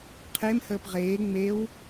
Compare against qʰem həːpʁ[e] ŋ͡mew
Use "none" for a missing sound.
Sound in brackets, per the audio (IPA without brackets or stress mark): eː